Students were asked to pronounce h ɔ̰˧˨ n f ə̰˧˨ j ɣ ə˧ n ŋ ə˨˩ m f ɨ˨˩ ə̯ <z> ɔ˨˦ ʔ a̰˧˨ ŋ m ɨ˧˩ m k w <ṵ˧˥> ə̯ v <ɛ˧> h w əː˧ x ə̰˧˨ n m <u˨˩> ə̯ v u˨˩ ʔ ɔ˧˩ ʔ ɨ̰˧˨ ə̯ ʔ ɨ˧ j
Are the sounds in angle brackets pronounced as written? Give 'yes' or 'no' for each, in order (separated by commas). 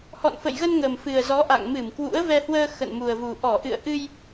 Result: yes, yes, yes, yes